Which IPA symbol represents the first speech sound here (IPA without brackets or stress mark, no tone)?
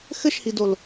x